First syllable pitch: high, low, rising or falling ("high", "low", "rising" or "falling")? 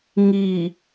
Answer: low